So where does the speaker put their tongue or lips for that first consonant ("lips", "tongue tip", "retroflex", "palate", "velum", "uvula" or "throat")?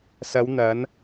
tongue tip